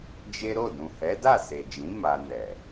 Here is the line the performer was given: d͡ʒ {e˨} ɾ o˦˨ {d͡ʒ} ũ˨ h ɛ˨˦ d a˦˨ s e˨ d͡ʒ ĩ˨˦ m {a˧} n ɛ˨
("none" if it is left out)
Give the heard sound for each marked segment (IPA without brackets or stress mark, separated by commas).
e˦, d, a˧